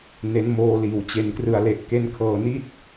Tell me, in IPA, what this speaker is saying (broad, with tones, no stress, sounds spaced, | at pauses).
n e˦˥ n m oː˧ l iː˨˩ w t͡ɕ e˨˩ n k r ɯ˨˩ a̯ l e˨˩ ʔ k e˦˥ n kʰ ɤː˨˩ n i˥˩ t̚